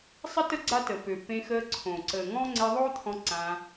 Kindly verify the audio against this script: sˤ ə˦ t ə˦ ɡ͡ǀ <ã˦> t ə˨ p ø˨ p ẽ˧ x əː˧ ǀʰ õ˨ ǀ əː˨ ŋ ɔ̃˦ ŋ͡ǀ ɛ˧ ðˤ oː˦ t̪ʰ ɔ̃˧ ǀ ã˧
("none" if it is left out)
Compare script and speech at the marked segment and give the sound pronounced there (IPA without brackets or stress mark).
a˦